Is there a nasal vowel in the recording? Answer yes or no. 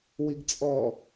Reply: no